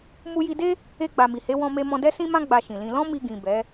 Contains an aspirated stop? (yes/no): no